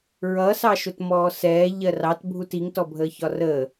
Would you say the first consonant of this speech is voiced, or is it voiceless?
voiced